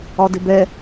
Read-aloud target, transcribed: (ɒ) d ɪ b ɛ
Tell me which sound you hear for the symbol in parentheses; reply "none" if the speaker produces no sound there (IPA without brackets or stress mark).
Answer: ɒ